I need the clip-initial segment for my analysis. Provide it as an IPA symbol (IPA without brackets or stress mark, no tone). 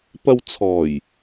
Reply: p